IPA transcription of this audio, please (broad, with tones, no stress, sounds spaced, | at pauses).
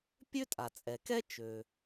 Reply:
pʲ ø˥ tʼ a˩ t͡sʼ ɛ˩ k ɛ˥ t͡ʃ ø˩